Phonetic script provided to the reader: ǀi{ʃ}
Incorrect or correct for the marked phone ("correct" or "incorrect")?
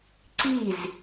incorrect